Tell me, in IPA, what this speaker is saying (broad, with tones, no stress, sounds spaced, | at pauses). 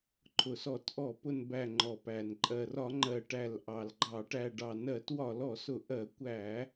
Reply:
ǃʰ ʊ˨˩ s ɔ˧˩˧ t ʔ ɔ˧˩˧ p ʊ˨˩ n b æ˨˩ ŋ͡ǃ ɔ˨˩ p æ˨˩ n ǃʼ ɜ˨˩ r ɒ˧˩˧ ŋ͡ǃ ɜ˨˩ ʈ æ˨˩ l ʔ ɑ˨˩ l ɡ͡ǃ ɑ˧˩˧ ʈ æ˨˩ ɖ ɑ˨˩ n ɜ˧˩˧ t w ɒ˧˩˧ l ɔ˧˩˧ s ʊ˧˩˧ ʔ ɜ˧˩˧ kʷ æ˧˩˧